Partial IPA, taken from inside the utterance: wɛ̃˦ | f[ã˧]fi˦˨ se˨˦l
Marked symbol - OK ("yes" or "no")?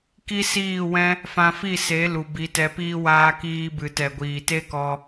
yes